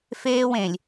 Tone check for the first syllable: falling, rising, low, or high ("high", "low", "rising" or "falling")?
high